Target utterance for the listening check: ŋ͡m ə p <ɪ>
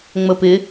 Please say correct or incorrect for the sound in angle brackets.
correct